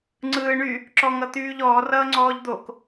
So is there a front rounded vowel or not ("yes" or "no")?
yes